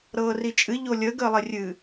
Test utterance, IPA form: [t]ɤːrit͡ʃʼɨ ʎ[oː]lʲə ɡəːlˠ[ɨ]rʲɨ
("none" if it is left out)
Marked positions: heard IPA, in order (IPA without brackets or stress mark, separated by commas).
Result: ɾ, o, e